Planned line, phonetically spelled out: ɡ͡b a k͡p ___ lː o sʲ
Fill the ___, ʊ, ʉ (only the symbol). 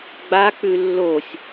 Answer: ʉ